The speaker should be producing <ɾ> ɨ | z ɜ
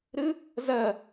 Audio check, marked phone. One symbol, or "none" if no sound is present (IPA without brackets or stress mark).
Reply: ɾ